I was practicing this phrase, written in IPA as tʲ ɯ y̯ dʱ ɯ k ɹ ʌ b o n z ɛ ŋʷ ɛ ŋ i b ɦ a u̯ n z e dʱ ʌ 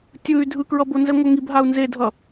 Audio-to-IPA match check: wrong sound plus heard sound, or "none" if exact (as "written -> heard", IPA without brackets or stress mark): none